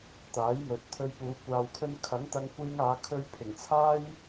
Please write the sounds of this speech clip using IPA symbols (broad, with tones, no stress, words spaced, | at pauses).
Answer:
t̪aː˨˥jmɵ˨t̚t̪ʰɵ˧ɥpuː˨˧ kʷaː˨wkʰɵ˧nkʰɐ˨˥ŋ t̪ɐ˧ŋkʷiː˧ŋaː˨˧ kʰɵ˧ɥpʰɪ˨˩ŋt͡sʰaː˥j